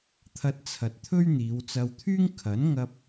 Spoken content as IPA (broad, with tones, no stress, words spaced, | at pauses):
t̪ʰɐ˧t̚t͡sʰɐ˨t̚ t̪ʰɵ˥ɥ n̪iː˨˧wt͡sɐ˧wt̪ʰyː˥ŋkʰɐ˨˥n ŋɐ˧p̚